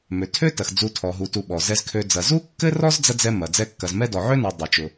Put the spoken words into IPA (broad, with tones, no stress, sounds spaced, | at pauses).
m ø˩ tʰ ø˦ t ɐ˩ x d͡z u˨ tʰ ɔ˩ ɦ u˩ t u˨ ɓ ɔ˩ z ɛ˨ z kʰ ø˨ d͡z ɐ˩ z u˥ kː ɘ˥ r ɔ˥ z d͡z ɐ˥ d͡z ɛ˦ m ɐ˩ d͡z ɛ˦ kː ɐ˨ z m ɛ˥ d ɔ˩ ʕ ø˥ n ɔ˩ dˤ ø˩ t͡ʃ ʊ˩